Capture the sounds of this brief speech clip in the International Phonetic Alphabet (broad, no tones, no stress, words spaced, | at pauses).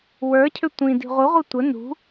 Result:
wə˞cʰʏ tʷĩ di̤ʁʷɯʁʷɯ tʷə nṳ